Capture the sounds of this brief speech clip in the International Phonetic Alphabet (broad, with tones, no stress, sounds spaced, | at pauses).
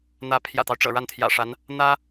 n̪ ä˧˥ pʰ j ä̰˨˩ t̪ ɑ˦ ʊ̯ ʈ͡ʂ ɤ̰˨˩ ɻ a˥˩ n t̪ʰ j ä̰˨˩ ʂ a˧˥ n | n̪ ä˥